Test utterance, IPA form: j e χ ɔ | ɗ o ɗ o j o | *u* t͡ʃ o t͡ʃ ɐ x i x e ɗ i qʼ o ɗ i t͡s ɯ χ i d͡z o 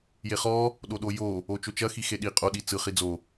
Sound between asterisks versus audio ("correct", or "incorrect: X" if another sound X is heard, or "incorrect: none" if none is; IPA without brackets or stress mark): incorrect: o